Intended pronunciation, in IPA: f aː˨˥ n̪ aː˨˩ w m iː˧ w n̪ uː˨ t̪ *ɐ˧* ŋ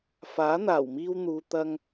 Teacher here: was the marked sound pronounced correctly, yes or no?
yes